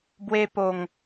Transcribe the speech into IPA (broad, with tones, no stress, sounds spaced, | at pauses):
b w e˧ p o˨˩ ŋ